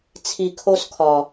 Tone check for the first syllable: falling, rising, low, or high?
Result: low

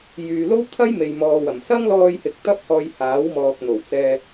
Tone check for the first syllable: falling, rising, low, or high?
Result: low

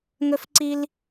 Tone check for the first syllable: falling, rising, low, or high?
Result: high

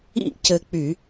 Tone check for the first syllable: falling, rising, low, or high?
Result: falling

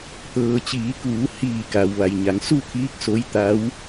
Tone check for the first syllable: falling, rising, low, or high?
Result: low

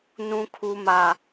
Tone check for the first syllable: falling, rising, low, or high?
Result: high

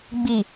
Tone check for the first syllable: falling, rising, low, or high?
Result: low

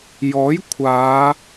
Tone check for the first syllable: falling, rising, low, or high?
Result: rising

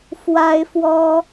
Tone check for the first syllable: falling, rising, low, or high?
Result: high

